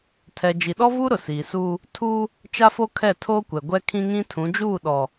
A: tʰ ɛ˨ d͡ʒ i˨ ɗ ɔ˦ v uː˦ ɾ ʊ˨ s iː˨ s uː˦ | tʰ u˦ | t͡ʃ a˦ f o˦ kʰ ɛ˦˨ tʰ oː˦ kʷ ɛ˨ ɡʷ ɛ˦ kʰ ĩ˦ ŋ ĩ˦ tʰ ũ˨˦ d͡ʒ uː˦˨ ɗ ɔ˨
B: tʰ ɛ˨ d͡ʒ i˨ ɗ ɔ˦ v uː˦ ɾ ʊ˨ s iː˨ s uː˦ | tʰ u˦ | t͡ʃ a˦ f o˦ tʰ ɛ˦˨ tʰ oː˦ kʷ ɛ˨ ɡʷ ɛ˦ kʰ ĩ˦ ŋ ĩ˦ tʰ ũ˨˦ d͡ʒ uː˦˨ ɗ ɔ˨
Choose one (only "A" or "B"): A